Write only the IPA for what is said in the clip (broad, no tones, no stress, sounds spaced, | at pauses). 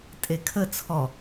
tʼ e kʰ ə t͡sʰ ɔ